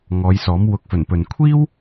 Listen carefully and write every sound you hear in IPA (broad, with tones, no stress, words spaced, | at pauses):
ŋɔː˨˧jsɔː˨˥m wʊ˨k̚fɵ˨˩npɵ˨n kʷʰiː˥w